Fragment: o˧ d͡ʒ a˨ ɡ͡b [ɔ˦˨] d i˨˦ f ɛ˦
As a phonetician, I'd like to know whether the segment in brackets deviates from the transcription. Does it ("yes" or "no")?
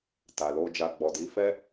yes